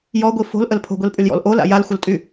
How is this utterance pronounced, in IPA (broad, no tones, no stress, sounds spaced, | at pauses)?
j ɔ ɡʷ i f o̤ l ʔ ə l pʰ o̤ ɡʷ i l pʼ y l j ɔ̰ l ʔ o l a̰ j a l xʷ ə l tʼ y